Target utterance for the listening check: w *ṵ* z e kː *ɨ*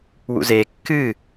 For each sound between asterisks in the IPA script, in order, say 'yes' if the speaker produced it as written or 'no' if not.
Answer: yes, yes

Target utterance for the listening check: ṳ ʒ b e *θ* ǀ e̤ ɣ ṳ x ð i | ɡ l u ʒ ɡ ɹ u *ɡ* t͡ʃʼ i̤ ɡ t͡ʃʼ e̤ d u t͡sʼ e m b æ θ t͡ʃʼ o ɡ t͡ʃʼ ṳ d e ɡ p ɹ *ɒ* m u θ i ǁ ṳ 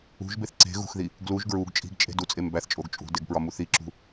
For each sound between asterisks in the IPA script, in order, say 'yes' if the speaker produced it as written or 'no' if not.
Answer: yes, yes, yes

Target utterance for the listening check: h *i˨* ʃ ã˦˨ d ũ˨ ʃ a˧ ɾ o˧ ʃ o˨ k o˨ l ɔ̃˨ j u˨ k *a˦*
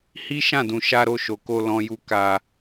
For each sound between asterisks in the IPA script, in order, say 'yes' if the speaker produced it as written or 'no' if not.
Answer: no, no

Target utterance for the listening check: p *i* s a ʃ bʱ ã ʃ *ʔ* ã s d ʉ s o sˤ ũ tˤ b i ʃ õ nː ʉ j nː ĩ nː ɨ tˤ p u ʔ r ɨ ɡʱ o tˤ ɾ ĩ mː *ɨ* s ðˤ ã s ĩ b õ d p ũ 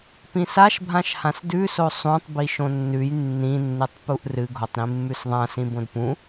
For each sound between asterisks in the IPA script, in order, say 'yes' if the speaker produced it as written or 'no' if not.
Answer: no, no, no

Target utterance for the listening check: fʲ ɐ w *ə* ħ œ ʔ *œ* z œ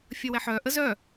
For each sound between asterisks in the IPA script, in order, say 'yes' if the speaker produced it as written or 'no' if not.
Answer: no, no

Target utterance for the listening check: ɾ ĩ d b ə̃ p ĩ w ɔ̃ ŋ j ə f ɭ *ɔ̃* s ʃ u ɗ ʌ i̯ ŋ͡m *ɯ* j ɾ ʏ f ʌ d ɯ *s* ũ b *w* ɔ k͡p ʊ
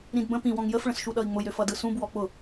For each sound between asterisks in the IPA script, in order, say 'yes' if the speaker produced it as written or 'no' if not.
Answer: no, no, yes, yes

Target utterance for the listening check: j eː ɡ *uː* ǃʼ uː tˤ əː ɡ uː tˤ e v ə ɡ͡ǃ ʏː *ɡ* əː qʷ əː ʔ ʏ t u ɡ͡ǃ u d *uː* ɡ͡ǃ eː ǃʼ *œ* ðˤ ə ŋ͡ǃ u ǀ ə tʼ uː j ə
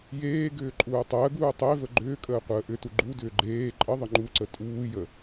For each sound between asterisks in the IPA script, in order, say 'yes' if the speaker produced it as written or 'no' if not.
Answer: no, no, no, no

